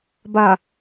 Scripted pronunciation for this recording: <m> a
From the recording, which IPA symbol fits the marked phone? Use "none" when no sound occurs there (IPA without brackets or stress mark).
b